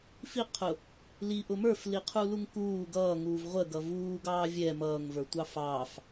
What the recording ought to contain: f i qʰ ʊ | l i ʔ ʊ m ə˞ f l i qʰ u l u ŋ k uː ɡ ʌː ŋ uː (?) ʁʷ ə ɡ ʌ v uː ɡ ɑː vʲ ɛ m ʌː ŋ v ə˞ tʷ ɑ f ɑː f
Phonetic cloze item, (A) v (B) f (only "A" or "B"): A